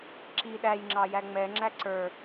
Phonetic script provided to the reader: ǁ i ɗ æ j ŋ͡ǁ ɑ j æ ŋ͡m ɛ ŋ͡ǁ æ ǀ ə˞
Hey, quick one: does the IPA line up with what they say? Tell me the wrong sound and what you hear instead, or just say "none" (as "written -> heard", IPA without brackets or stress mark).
none